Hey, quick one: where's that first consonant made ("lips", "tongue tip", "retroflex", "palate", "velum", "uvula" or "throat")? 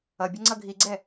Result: lips